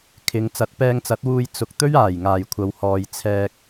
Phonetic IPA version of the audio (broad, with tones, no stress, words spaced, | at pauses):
kʰɪ˨˧ŋ t͡sɐ˨˥t̚pɛː˧ŋt͡sɐ˨˥t̚wuː˧j t͡sʊ˨k̚ t̪ɵ˥ɥaː˨˩j ŋaː˨˩jkʷʰɐ˨whɔː˨j t͡sʰɛː˧k̚